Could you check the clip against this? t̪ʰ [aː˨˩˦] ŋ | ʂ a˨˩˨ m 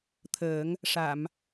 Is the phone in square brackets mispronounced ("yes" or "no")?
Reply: yes